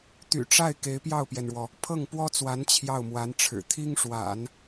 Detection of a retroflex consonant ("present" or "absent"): present